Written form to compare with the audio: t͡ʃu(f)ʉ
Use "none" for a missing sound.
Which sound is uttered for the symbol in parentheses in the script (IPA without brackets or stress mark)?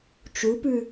p